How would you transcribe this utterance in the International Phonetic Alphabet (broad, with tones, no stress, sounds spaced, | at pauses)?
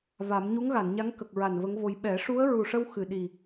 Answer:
v a˨˩˦ m ɲ u˧˥ ŋ ɣ a˨˩˨ n ɲ a˧˥ ŋ k ə˨˩ k̚ ɹ a˨˩ n v ə˧˥ ŋ v o˧ j ɓ ɛ˨˩˦ ʂ u˧˥ ə̯ ɹ u˨˩ ʂ ə˧ w x ɨ˨˩ ɗ i˨˩